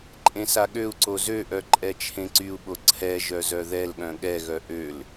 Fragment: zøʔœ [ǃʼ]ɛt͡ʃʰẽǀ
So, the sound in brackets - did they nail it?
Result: yes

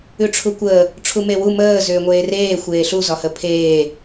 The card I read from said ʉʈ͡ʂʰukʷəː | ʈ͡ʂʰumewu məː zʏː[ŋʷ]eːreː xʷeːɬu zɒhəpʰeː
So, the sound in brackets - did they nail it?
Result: yes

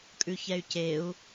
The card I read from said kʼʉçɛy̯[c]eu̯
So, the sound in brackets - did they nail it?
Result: yes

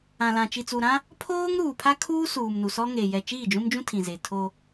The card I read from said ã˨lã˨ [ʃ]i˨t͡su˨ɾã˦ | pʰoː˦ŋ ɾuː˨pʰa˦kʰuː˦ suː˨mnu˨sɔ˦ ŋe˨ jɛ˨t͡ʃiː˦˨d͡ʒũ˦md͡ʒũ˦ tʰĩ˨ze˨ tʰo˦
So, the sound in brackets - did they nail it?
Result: no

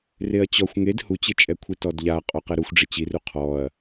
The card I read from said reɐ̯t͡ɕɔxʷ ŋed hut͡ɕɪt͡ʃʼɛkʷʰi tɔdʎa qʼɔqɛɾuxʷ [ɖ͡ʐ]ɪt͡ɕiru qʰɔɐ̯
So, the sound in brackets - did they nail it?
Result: yes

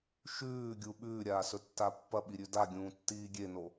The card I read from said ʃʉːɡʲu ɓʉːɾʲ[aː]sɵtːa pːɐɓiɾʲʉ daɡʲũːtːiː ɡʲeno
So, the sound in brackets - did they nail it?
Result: yes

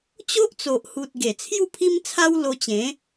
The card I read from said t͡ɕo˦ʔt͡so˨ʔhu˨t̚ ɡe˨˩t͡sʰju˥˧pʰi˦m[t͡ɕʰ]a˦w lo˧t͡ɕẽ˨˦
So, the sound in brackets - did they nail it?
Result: no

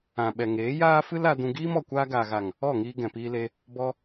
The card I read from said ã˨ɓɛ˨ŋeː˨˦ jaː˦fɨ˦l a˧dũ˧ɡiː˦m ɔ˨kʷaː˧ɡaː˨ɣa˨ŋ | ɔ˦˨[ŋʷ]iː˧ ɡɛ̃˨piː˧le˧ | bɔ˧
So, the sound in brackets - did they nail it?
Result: no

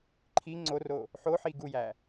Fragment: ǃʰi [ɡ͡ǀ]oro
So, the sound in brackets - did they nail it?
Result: no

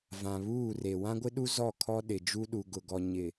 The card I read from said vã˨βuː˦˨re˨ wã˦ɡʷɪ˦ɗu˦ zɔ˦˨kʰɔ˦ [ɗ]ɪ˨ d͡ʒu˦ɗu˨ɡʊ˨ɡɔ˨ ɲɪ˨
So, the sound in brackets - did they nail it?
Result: yes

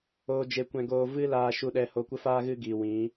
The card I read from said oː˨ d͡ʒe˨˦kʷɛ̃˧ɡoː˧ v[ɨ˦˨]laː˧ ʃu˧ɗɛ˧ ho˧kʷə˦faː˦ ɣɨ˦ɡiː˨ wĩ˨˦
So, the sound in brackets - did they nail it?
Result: no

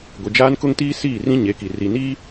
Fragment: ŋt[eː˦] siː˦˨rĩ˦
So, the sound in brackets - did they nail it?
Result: no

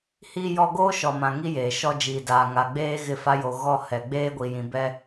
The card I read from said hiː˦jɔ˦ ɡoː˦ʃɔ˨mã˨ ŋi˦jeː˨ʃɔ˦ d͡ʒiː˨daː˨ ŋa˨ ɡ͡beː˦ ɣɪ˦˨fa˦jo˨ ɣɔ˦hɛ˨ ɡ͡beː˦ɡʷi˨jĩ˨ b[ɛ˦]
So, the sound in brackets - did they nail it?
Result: yes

